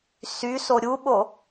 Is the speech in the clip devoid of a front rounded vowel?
no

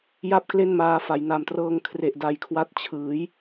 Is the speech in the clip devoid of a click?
yes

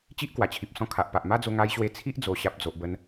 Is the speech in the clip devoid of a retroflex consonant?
yes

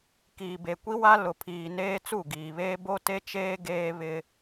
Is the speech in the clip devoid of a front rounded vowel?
yes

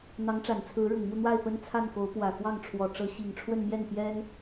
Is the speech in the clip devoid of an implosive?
yes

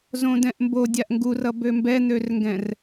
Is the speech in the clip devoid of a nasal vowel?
no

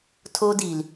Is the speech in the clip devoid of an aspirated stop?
no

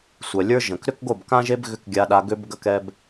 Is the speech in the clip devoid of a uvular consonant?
yes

